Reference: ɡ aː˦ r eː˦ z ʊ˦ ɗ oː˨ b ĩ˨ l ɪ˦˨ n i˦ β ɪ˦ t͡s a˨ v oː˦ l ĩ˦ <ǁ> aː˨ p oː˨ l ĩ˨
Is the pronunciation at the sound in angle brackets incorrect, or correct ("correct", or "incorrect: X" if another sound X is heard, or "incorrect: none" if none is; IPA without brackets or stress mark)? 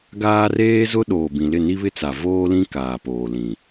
incorrect: k